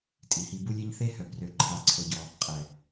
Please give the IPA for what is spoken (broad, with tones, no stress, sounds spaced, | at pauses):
tʼ i˨ h i˧ b u˦ lʲ e˦ ɲ θ e˦ h œ˨ b r ø˧ ǃʰ a˧ ǀʰ o˧ ɟ ɔ˧ | qʼ ɛ˨